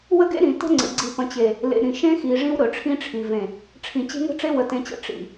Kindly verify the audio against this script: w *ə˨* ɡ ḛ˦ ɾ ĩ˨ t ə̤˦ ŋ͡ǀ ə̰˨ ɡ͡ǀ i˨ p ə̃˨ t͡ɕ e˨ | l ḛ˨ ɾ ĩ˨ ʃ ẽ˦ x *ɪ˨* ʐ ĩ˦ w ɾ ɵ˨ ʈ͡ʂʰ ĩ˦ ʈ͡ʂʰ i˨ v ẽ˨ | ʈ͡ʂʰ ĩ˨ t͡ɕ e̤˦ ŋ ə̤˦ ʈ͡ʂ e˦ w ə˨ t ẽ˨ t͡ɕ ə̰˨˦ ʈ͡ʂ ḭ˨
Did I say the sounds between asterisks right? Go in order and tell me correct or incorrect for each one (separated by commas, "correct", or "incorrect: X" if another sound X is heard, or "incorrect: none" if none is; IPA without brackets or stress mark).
incorrect: ə˦, incorrect: i˨